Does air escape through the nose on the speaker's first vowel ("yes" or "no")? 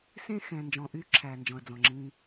yes